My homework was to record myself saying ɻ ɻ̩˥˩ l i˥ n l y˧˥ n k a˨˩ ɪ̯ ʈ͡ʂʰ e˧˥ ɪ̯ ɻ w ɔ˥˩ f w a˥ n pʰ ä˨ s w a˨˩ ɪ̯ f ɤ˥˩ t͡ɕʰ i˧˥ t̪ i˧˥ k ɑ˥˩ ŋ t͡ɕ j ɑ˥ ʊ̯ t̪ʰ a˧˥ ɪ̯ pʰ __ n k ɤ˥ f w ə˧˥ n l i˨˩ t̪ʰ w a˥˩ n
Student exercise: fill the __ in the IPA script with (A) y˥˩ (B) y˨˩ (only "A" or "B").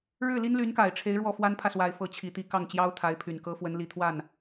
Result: B